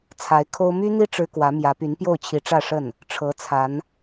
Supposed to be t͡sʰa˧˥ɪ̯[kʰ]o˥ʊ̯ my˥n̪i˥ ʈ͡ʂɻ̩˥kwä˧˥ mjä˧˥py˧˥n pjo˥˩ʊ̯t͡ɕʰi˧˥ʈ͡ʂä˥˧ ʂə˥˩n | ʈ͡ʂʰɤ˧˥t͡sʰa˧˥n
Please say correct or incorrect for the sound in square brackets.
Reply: correct